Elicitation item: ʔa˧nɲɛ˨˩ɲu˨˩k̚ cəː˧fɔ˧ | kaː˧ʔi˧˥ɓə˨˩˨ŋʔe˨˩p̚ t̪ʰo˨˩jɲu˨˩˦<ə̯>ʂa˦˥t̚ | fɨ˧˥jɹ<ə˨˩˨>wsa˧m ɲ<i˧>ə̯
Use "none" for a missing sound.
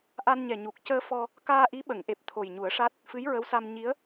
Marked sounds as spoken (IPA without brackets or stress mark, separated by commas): ə̯, ə˧˥, i˧˥